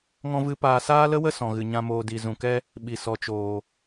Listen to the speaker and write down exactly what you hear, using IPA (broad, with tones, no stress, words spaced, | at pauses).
ŋɔ̃˦vɨ˦ paː˧saː˦lə˦wə˦ sɔ̃˨ɣɨ˨ɲã˧ moː˧di˨ zũ˨kɛ˦ | ɓi˨sɔ˨t͡ʃoː˨